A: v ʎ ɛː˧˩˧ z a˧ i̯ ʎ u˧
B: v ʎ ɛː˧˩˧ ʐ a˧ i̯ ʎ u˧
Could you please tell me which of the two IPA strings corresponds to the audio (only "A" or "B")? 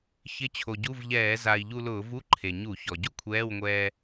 A